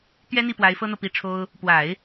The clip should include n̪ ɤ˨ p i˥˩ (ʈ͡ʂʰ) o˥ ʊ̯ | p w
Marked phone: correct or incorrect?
correct